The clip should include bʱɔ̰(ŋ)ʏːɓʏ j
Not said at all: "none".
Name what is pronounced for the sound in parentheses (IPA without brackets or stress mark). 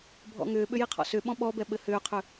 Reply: ŋ